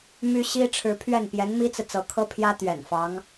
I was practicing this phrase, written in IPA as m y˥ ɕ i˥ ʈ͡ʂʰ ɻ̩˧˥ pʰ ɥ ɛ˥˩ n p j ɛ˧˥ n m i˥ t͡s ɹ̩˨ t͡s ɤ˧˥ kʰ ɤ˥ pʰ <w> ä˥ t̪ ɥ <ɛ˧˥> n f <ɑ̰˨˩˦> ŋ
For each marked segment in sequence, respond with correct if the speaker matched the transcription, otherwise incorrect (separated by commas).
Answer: incorrect, incorrect, incorrect